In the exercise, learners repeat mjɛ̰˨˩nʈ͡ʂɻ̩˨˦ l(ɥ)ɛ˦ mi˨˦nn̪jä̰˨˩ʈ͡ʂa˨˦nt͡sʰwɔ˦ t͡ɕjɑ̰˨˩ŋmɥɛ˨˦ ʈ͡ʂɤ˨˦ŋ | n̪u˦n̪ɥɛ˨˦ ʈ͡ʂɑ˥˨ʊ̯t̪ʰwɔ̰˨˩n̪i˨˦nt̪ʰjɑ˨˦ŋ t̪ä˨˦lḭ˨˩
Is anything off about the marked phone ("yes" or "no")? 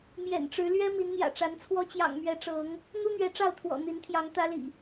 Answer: no